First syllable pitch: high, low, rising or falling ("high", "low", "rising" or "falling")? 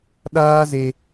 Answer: high